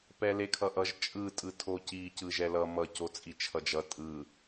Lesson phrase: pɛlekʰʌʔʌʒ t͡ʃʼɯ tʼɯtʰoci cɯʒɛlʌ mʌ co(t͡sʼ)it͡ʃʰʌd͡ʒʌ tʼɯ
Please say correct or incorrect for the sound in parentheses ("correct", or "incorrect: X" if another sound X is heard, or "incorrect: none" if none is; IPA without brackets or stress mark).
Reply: correct